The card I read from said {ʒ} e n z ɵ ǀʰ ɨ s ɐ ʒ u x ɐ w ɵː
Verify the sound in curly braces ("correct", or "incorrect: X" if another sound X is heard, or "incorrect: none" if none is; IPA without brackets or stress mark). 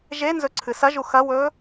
correct